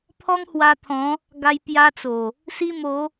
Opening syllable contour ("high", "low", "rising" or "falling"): high